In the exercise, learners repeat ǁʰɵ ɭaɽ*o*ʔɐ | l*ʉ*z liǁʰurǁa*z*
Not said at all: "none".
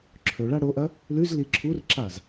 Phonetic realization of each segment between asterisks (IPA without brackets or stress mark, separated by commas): o, ʉ, z